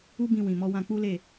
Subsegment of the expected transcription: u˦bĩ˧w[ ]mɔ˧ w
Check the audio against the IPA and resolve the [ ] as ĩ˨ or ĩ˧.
ĩ˨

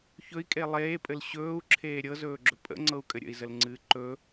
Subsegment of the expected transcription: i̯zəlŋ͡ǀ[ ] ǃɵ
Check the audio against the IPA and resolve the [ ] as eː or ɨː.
ɨː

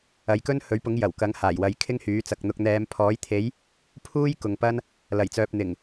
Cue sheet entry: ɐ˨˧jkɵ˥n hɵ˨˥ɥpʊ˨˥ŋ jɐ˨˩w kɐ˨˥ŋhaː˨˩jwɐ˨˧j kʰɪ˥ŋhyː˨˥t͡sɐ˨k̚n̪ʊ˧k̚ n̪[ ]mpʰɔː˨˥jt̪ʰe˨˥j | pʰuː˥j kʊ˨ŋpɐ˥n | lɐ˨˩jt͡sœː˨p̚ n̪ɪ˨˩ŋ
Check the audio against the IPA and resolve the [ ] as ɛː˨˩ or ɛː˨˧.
ɛː˨˧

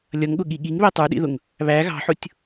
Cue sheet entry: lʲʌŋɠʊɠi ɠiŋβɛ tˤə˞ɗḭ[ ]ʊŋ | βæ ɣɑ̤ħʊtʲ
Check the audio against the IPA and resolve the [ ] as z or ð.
ð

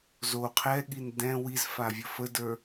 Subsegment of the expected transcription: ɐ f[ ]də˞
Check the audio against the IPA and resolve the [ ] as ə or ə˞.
ə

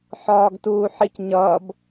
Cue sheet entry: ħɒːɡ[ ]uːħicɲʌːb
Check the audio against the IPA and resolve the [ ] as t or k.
t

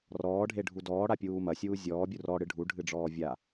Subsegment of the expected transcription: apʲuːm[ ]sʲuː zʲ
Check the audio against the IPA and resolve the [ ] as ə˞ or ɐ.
ɐ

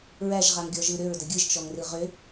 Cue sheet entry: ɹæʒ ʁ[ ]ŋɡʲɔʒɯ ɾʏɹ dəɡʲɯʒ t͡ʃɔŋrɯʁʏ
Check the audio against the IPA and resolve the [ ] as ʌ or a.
a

